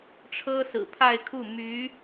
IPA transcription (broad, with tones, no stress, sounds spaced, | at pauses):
ʈ͡ʂʰ ɤ˥ s ɹ̩˨˩ pʰ a˥˧ ɪ̯ kʰ u˥˩ m y˧˥